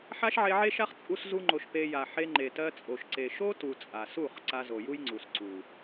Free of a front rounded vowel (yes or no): yes